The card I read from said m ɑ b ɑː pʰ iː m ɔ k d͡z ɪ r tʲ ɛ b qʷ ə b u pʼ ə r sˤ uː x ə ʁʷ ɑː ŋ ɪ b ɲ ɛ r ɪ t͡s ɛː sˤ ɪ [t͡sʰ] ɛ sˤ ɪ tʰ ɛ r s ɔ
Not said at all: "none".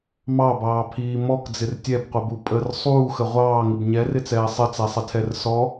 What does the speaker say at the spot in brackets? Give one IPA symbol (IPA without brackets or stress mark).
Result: t͡s